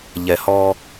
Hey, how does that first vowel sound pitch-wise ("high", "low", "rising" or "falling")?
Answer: low